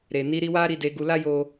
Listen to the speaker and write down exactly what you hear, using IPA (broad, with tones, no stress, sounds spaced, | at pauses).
ɾ e˨ n i˧ ɾ i˧ w a˦ ɾ i˧ d e˧ ɡ u˧ l a˦ j o˦